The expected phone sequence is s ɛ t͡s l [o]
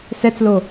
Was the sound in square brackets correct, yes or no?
yes